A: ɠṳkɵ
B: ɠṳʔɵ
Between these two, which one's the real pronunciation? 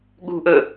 B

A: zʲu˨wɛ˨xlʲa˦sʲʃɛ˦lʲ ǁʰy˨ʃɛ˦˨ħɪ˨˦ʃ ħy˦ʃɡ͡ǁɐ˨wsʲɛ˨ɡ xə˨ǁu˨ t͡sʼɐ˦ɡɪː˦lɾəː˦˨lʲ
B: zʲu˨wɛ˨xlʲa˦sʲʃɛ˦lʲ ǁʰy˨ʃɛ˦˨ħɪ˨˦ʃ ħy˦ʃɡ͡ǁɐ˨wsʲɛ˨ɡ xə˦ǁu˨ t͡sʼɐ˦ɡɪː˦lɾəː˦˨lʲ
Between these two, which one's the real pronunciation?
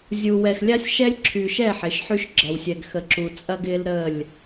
A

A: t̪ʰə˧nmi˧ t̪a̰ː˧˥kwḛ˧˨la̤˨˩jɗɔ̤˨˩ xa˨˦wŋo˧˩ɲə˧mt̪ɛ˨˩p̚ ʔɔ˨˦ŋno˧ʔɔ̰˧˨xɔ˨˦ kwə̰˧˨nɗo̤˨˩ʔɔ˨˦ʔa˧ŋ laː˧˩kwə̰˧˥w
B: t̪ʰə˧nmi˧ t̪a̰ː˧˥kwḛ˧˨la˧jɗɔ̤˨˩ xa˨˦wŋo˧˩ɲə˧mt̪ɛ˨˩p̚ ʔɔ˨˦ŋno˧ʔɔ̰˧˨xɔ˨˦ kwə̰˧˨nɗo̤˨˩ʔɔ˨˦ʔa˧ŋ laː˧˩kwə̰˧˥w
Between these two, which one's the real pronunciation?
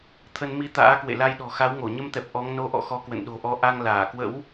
B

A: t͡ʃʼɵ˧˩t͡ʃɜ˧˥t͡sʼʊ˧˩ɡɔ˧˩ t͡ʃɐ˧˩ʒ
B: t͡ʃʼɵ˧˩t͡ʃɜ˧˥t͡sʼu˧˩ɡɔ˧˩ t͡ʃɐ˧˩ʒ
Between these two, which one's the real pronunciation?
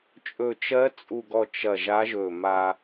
B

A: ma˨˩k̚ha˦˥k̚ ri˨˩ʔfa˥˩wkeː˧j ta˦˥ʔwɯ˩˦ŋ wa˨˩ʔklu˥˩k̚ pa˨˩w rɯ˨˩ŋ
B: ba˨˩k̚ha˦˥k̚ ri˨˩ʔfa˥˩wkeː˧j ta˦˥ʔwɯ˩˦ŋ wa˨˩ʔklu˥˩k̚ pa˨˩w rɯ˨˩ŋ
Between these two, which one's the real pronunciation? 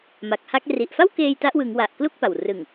A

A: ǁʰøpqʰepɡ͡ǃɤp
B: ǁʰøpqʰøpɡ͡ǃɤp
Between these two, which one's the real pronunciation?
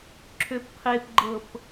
A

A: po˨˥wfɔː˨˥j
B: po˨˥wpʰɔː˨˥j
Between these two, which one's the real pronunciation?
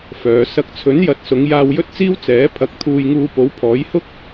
B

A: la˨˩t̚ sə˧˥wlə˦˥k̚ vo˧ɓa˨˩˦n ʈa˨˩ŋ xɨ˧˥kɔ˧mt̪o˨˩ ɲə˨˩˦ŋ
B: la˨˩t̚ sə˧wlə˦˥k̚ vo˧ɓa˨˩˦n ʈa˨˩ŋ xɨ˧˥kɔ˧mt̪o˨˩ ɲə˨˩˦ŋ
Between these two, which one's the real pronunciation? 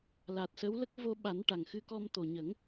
A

